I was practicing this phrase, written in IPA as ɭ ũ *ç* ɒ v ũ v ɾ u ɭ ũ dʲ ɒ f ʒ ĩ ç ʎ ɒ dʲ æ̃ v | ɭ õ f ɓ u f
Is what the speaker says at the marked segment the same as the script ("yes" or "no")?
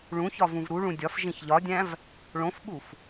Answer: yes